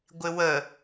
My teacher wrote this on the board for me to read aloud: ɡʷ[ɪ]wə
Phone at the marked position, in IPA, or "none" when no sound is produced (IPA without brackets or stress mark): ɪ